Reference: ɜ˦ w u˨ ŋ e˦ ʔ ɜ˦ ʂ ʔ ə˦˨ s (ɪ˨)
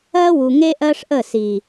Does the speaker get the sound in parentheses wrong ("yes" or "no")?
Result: yes